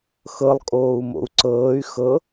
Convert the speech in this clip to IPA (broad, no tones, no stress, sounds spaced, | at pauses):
x ɤ lˠ kʼ oː u̯ m o̰ u̯ ǀ ɤː y̯ x ɤ